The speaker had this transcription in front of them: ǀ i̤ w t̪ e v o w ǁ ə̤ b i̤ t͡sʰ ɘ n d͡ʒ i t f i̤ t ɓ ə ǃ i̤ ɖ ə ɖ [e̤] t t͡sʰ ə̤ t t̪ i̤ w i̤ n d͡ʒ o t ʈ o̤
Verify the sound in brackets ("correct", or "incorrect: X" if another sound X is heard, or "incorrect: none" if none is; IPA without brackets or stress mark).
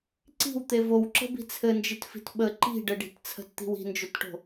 incorrect: i̤